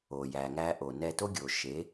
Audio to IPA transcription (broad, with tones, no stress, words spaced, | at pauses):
o˨jæ˨ŋæ˧ʔo˨ nɛ˧to˦ ɡʲo˨ʃe˨˦